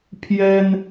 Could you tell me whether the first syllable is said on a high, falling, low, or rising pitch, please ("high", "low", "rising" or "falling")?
high